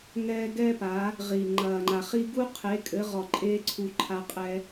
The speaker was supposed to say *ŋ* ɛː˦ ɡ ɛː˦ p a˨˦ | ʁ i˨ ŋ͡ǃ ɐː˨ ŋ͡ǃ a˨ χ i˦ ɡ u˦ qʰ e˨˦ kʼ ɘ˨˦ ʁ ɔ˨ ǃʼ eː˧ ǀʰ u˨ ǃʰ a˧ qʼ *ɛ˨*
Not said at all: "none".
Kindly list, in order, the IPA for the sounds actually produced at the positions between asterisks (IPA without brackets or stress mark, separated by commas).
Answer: ŋ, ɛ˧